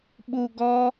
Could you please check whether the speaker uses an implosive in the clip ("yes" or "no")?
yes